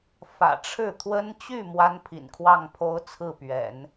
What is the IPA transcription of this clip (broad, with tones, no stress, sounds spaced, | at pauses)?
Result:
f ä̰˨˩ ʈ͡ʂʰ ɻ̩˥˩ t̪ʰ w ə˥ n t͡ɕ y˥˩ m w a˥ n pʰ ḭ˨˩ n kʰ w ɑ˥˩ ŋ pʰ o˥ ʊ̯ t͡sʰ ɹ̩˥˩ p ɥ ɛ̰˨˩˦ n